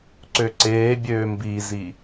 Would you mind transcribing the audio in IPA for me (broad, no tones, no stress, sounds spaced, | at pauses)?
ǀ ø ǀ eː bʲ øː m b i z i